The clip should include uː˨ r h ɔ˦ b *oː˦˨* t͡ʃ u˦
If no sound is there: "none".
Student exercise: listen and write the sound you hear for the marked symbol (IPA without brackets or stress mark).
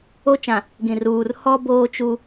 oː˦